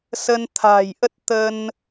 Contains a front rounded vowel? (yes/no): no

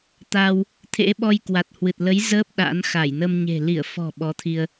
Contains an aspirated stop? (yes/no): yes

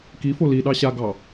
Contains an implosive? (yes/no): yes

